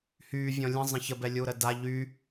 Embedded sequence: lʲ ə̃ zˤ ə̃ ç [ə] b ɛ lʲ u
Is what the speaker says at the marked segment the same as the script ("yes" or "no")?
yes